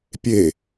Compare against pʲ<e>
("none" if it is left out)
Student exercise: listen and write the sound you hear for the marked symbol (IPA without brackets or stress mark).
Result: e